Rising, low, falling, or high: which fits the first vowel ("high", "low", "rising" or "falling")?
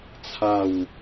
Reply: falling